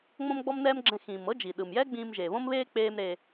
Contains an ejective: no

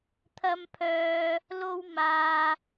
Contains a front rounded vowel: yes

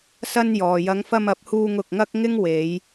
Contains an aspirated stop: no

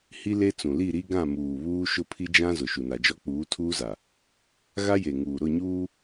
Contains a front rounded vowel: no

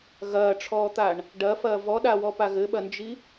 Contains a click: no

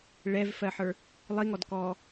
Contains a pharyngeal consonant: yes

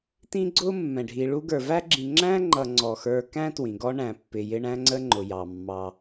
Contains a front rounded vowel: no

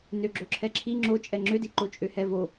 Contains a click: yes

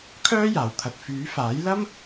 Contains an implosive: no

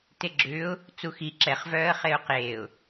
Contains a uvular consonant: yes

